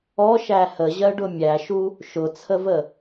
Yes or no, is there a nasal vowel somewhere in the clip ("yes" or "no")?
no